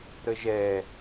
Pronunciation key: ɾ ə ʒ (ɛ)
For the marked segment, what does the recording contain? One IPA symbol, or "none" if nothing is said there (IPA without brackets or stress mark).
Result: ɛ